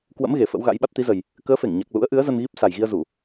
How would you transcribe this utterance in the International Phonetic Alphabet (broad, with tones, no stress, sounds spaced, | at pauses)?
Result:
k w ə̰˧˥ m ɣ e˨˩ f ə̰˧˥ w ɣ a̰˧˥ j ɓ a˦˥ t̚ t̪ i˨˦ z ə˨˩ j | k əː˨˦ f e˧˩ ŋ ɲ a˨˩ k̚ l ṵ˧˥ ə̯ ʔ ɨ˨˦ ə̯ z ə˧ n ɣ i˦˥ p̚ s a˨˩ j ɣ i˧ ə̯ z u˧˩˨